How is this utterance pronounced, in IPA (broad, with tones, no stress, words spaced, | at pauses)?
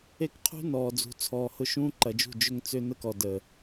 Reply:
e˦kqʰṳ˦nɔː˨ d͡zṳ˨t͡sʰɔː˨ hʊ˦ʃũː˦ǃɐ˨d͡ʒṳ˦˨ d͡ʒʏ˦ŋt͡sʏ˦ nə˦kɔ˨ də˨